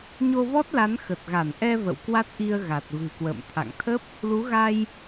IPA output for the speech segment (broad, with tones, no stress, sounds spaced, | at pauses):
ɲ o˧ v ɔ˦˥ t̚ l a˨˦ n x ə˨˩ t̚ ɣ a˧˩ n ʔ ɛ˧ v ə̰˧˨ w k w a˦˥ t̚ ʔ i˧ ə̯ ɣ a˨˩ t̚ v ɨ̤˨˩ k w ə̰ː˧˨ m t̪ʰ a̰˧˨ ŋ t̪ʰ ə˦˥ p̚ | l u˨˦ ɣ a˧ j